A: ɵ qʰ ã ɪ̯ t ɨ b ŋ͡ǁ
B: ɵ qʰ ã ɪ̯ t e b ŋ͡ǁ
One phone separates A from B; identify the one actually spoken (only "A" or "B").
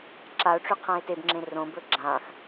B